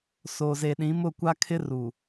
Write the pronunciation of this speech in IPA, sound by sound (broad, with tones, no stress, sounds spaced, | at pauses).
s o˨ z e˨ ɗ ĩ˨˦ m ʊ˦˨ kʷ a˦ kʰ ɪ˦ r u˨